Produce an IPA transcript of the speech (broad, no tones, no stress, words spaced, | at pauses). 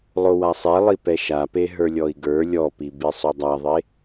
lˠowasˤɛlˠi pɛʃape ɦə˞lʲɔi̯ɡə˞ lʲɔpi bisˤodˤaðˤe